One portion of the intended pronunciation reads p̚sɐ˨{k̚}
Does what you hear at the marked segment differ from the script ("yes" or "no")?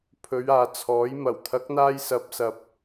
yes